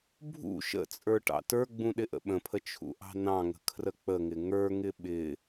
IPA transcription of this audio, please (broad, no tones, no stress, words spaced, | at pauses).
bʱṵ ʃə̰t͡sʼə˞ ʈɑ̰tə˞ɡ͡bũ ɗɪʔə̰ɓə̃pʰə t͡ʃʰṵʔɑ̤nɑ̃ŋə̤ kʰrək͡pəŋɪ ŋə˞ŋɪ ɓɪ